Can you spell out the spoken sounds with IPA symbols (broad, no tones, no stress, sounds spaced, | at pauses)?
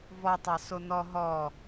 v ɔ tˤ ɑ s o n ɔ ɦ ɔ